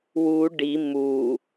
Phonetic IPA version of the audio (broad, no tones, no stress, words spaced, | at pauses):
wu ɖi mu